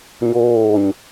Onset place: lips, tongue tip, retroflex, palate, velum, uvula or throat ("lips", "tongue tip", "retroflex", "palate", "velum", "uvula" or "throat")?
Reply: palate